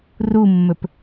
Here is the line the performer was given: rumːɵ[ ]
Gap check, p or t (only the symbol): p